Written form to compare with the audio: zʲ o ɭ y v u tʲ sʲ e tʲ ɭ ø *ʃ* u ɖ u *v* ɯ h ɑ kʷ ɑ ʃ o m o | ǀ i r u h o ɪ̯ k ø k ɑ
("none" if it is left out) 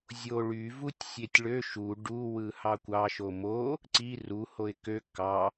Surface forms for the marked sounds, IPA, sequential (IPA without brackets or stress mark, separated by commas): ʃ, w